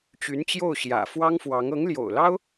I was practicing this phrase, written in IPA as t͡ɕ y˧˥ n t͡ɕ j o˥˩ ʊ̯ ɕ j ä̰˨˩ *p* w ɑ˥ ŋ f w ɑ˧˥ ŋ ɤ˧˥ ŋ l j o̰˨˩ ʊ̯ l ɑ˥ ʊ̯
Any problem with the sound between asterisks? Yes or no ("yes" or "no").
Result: yes